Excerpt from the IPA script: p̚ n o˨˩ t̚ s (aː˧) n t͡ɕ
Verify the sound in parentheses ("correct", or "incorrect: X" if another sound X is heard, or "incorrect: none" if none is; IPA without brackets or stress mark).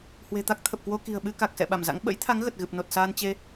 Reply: correct